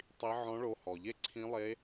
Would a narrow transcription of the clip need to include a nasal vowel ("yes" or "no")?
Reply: yes